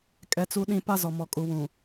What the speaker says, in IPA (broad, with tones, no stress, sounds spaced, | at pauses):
kʼ ɛ˦ t͡s u˦ ɗ ĩ˦ p a˦ z ɔ˨ m ɔ˨ kʼ u˨ w ũ˨